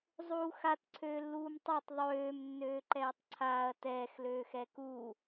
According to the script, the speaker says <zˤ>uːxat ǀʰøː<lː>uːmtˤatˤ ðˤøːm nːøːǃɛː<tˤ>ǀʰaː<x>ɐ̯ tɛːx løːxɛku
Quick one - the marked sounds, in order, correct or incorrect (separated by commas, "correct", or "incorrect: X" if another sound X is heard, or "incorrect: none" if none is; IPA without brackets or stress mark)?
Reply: correct, correct, correct, incorrect: none